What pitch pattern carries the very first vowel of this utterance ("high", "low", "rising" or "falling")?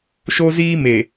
high